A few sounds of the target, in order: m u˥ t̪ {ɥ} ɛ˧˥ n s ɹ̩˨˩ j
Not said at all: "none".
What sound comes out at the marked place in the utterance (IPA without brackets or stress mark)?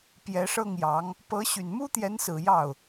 j